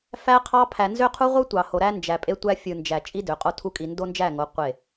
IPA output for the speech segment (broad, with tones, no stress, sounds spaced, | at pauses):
f æ˦ qʰ ɑ˦ pʰ æ˨ n z ø˦ qʰ u˦ ʁʷ ɯ˦ tʷ ɑ˨ h o˨ ɾ æ˦ n d͡ʒ æ˨ pʼ e˦ tʷ æ˦ fʲ ɯ˨ n d͡ʒ æ˨ t͡ʃʼ i˦ d ø˨ qʼ o˦ tʰ u˦ kʼ i˨ n d o˦ n d͡ʒ æ˦˨ ŋ o˨˦ qʷ e˦˨